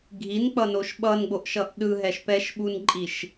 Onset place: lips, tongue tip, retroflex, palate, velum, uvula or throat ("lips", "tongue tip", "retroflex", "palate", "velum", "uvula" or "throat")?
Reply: velum